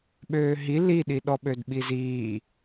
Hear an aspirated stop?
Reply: no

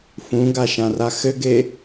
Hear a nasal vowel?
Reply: yes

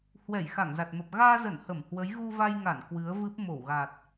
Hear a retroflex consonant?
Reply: no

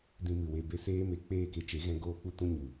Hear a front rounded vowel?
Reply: no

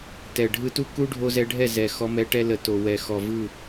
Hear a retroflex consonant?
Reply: yes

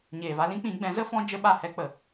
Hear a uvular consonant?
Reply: no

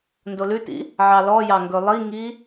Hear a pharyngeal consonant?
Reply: yes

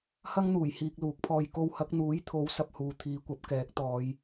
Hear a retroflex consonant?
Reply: no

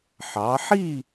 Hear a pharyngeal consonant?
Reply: yes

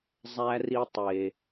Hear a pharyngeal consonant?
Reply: no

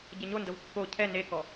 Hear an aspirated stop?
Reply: yes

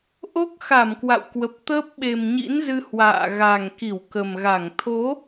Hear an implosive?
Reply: yes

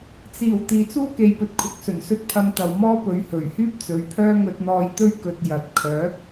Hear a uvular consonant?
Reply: no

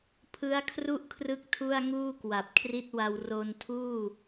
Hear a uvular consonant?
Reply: no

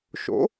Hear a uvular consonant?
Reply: no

